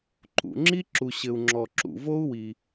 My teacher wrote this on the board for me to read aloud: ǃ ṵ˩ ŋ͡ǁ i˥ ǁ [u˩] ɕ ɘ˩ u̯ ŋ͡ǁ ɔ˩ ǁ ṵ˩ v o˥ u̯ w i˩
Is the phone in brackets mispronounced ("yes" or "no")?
no